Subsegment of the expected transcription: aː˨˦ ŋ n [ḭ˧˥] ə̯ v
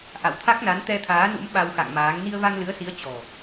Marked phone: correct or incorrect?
incorrect